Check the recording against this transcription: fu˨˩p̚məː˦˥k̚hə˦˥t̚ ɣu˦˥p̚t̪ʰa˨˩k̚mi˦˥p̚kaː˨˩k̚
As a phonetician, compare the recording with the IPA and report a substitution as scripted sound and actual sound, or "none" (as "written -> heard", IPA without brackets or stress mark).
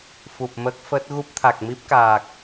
h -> f